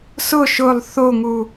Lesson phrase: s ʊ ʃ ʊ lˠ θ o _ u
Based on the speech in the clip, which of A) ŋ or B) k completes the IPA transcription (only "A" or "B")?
A